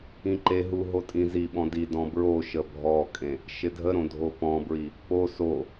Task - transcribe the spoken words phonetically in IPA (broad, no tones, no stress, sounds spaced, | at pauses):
ĩ ǃ e ɦ u ɦ o tʼ ĩ z i ɓ ɔ̃ d i d ɔ̃ b ɹ o ʃ ə bʱ ɔ kʼ ẽ | ʃ ɪ dʱ ə ɾ õ dʱ o p ɔ̃ b ɹ i | p o s o